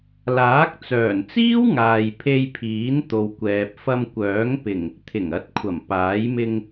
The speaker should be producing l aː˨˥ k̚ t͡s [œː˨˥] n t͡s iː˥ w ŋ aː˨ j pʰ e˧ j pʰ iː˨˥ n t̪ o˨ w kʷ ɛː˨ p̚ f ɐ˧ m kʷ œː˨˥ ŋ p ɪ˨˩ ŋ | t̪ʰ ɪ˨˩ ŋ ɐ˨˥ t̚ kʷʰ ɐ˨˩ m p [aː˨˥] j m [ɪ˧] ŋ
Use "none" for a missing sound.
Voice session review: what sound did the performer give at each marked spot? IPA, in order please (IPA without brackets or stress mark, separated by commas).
œː˨˩, aː˨˥, ɪ˧